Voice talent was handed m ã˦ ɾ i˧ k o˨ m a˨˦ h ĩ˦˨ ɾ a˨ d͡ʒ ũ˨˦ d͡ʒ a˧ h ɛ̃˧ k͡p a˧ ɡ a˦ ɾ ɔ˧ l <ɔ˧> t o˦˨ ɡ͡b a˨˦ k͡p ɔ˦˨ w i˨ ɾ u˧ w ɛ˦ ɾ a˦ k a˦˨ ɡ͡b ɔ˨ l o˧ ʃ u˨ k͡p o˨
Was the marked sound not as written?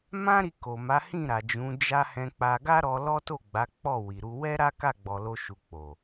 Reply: yes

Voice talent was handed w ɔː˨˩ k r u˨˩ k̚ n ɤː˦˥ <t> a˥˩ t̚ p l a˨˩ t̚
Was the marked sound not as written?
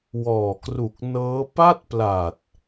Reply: yes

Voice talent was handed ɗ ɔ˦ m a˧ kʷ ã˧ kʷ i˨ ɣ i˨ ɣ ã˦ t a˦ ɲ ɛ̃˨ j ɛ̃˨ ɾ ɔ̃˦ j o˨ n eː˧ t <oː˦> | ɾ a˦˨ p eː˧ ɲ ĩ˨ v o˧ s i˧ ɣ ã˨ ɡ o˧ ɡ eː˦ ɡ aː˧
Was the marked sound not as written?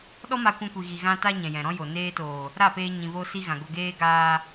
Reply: yes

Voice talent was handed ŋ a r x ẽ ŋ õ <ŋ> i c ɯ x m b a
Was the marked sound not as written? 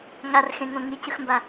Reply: no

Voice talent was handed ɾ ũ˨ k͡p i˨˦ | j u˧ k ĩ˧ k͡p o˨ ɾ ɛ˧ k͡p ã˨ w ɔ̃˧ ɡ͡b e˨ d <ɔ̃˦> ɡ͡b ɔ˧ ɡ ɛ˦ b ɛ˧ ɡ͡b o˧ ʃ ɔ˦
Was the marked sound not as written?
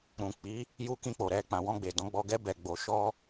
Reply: yes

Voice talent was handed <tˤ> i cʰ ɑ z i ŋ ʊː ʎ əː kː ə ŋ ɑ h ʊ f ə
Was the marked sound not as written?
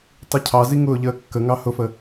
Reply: no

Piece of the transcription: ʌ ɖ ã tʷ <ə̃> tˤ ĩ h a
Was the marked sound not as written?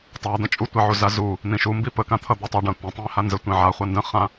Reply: no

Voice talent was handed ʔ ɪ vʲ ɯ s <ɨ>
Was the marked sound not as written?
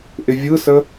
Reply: yes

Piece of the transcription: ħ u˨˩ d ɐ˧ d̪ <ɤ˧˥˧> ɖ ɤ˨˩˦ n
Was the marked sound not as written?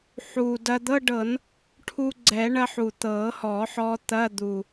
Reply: no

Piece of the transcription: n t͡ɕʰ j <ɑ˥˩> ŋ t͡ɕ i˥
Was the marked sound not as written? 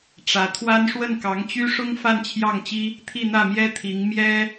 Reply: no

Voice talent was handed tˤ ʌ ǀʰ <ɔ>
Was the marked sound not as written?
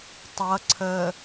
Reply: yes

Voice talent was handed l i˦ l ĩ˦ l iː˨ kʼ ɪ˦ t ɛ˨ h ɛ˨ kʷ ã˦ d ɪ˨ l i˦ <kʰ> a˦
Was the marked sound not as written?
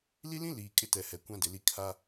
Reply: no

